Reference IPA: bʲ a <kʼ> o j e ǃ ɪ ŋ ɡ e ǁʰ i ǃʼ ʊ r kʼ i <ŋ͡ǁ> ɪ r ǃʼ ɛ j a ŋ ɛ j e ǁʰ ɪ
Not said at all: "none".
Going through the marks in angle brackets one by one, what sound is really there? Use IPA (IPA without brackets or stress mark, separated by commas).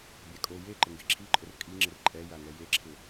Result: kʼ, ŋ͡ǁ